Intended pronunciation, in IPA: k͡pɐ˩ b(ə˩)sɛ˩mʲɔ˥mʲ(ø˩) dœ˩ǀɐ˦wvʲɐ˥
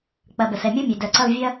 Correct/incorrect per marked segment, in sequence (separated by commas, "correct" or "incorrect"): correct, correct